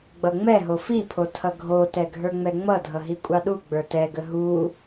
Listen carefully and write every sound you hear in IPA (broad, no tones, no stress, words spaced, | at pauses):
ɡ͡bʌŋ͡mɛɦo fipʰo tʰʌɡʱotɛ ɡʱə˞ŋ͡mɛŋ͡mʌdʱʌ ɦikʷʼɑɗuɡ͡bə˞ tɛɡə ɦu